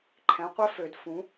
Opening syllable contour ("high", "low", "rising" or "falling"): rising